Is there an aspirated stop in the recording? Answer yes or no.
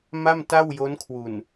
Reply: yes